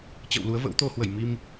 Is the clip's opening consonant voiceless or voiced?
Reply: voiceless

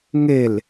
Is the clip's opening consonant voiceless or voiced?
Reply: voiced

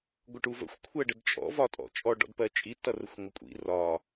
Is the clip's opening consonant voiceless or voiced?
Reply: voiced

